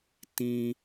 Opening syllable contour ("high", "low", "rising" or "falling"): high